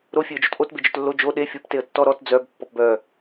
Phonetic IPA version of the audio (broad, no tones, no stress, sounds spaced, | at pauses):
ɾ o fʲ e ə̯ d͡ʒ o t ʔ o t b e d͡ʒ œ t lː o d͡ʒ o ɗ e fʲ o p t e ə̯ tː ɔ ɾ ɔ t d͡z œ b pː ɔ p b œ